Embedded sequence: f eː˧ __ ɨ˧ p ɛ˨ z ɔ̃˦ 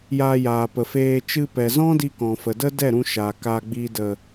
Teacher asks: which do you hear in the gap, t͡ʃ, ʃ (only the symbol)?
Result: t͡ʃ